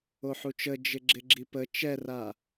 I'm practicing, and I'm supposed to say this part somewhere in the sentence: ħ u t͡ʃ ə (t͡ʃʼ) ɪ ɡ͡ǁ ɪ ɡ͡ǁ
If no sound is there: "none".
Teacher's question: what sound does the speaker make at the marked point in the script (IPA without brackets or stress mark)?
d͡ʒ